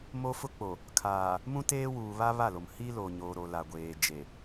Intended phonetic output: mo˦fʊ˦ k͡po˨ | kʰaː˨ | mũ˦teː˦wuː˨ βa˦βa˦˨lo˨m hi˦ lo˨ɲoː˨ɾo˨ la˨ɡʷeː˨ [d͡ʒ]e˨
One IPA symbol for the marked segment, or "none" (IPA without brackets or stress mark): d͡ʒ